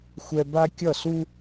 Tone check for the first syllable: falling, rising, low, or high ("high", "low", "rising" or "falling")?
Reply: high